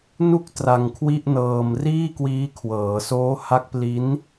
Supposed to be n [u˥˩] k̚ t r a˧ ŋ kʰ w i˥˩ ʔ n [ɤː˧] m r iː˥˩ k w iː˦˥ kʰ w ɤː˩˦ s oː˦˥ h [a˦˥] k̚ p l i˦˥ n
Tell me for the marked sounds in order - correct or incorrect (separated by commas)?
correct, correct, correct